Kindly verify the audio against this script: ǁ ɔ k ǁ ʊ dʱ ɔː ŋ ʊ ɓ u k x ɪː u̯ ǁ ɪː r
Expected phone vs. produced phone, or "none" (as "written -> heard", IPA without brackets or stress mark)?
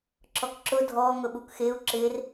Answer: none